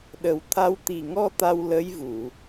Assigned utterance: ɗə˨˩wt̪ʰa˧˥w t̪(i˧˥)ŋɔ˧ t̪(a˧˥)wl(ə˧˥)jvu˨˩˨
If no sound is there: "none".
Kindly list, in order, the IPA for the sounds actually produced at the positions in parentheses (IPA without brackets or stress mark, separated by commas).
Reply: i˨˩, a˧, ə˧˥